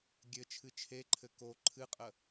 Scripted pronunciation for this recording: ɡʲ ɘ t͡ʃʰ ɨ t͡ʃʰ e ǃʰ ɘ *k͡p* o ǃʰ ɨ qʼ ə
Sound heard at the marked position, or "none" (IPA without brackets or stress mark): k